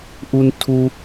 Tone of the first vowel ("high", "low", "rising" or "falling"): high